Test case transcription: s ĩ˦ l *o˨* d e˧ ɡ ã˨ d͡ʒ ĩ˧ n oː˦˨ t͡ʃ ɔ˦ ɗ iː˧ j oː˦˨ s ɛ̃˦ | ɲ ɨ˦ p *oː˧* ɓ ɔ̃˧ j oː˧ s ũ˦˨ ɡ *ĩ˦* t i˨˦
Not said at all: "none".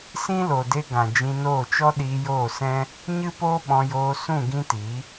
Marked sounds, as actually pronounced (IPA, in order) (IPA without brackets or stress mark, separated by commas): o˨, oː˦, ĩ˦